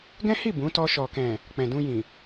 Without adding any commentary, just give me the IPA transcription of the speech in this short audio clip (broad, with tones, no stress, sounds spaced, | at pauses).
ɡ ɛ̃˦ h i˦˨ b ũ˨˦ t ɔ˧ ʃ ɔ˨ k ɛ̃˨ | k͡p ɛ̃˨ d ũ˧ j ĩ˨